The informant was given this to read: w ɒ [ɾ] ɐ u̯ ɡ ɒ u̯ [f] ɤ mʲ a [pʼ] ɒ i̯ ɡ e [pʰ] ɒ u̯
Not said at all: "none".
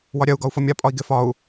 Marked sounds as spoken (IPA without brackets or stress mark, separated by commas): ɾʲ, f, pʼ, f